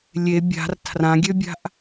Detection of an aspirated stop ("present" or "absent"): present